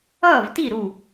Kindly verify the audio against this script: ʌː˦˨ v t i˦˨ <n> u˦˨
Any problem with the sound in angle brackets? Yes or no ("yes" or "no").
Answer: yes